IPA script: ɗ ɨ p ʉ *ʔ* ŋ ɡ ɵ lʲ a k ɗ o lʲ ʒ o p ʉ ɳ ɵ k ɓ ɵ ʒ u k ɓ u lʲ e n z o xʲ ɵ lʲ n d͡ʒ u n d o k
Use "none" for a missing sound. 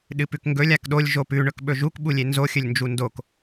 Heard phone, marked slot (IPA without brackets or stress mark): k